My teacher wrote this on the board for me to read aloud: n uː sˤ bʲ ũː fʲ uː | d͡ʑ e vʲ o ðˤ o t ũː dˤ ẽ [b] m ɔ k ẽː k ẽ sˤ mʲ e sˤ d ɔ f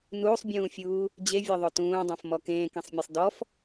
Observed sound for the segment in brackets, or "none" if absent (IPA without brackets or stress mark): f